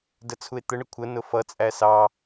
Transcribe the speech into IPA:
d ə t͡sʰ u e̯ t̪ ə ɳ ə kʷʰ ə n ʊ f ʌ t͡sʼ æ s ɑ

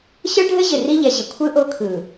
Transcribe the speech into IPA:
ɕ ɯ˦ ɭ ɖʱ ɘ˦ ʑ ɪ˨ r i˦ ʎ ɛ˨ ʑ ɪ˨ kʷʰ ɯ˦ ʔ o˦ kʰ ɯ˨

